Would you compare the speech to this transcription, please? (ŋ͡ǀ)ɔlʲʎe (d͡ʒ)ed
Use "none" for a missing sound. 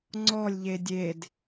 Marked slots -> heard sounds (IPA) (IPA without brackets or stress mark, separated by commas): ŋ͡ǀ, dʲ